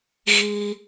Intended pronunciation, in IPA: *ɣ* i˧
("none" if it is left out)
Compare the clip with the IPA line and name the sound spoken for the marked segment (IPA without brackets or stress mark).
ɣ